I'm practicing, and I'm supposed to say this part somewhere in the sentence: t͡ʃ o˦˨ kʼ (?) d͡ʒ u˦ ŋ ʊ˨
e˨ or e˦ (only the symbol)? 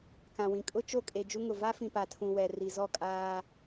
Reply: e˨